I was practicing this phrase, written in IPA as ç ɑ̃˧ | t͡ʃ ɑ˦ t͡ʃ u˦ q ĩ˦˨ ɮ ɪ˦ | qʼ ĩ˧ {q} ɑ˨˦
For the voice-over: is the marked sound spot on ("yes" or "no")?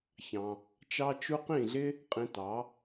no